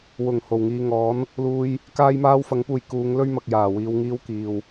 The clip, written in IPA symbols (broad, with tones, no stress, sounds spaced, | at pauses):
w ʊ˨˩ ŋ h o˨˩ w ŋ iː˨ ŋ ɔː˨˥ n | l uː˥ j | k aː˥ j m aː˥ w f ɐ˨˥ ŋ p uː˨ j k uː˨˧ ŋ l ɵ˥ ɥ m ɐ˨ k̚ j aː˨˩ w iː˧ w ŋ iː˥ w k iː˨ w